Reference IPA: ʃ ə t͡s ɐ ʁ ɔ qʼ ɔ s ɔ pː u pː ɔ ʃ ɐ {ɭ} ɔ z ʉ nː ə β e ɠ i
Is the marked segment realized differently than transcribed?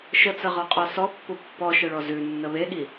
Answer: no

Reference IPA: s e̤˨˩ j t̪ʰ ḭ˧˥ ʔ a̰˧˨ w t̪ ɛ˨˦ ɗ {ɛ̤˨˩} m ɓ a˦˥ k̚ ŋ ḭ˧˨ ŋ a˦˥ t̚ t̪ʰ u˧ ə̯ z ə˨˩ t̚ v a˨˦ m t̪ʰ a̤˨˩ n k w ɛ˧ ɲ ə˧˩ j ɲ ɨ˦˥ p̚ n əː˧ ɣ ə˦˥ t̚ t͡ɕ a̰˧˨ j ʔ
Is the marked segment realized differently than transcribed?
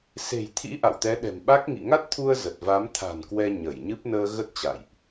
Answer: no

